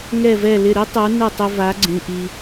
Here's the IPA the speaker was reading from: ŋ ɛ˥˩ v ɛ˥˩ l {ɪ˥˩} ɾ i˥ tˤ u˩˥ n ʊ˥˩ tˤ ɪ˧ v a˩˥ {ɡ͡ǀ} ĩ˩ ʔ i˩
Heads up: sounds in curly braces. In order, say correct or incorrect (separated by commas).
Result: correct, correct